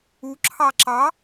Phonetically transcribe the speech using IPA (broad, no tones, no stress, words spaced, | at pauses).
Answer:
u ǁʰɑǁɑ